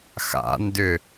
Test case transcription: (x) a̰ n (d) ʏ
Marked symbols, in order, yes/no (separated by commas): yes, yes